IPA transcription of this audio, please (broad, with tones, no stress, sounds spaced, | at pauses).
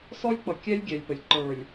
s ɔ˦ lʲ k͡p ʌ˨ kʲ ɛ˦ lʲ ɡʲ ɛ˨ lʲ p ə˨ lʲ ǃ ə˞˨ lʲ